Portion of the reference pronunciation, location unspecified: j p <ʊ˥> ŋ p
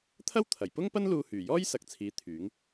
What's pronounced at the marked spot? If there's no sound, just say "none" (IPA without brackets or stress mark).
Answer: ʊ˥